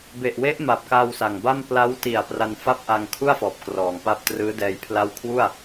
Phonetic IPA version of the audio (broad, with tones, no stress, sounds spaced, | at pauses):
b e˨˩ ʔ w e˦˥ ʔ m a˨˩ p̚ k a˧ w s a˨˩ ŋ b a˥˩ m p l a˦˥ w t i˨˩ a̯ p r a˧ n f a˥˩ p̚ ʔ a˧ ŋ kʰ u˥˩ a̯ f ɔː˨˩ p̚ k r ɔː˨˩ ŋ p a˥˩ p̚ t r ɯː˦˥ d ɛː˧ j pʰ l a˦˥ w kʰ w u˥˩ a̯